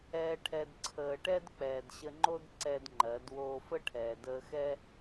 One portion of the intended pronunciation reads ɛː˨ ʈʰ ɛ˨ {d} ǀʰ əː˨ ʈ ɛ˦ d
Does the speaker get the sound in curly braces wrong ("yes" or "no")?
no